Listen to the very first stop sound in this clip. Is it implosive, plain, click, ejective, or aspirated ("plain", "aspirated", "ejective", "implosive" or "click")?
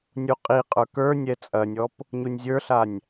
ejective